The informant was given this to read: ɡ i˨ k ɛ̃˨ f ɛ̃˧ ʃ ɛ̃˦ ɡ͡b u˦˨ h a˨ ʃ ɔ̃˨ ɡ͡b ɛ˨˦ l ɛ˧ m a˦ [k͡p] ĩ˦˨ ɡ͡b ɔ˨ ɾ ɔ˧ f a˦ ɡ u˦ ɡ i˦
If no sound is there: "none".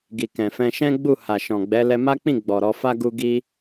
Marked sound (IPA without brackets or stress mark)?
k͡p